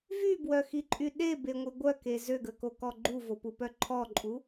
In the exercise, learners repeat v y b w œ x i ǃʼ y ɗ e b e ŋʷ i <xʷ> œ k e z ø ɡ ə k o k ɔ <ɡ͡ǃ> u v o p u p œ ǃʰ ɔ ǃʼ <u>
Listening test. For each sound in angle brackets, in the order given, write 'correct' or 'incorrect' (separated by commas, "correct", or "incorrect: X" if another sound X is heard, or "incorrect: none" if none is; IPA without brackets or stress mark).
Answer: incorrect: ɡʷ, correct, correct